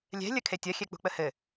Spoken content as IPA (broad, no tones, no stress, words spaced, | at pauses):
lʲɛ̤lʲə kʰetʲɐxʲɛ k͡pṳk͡pəhɘ